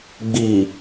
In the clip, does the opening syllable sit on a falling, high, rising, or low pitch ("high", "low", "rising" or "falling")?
low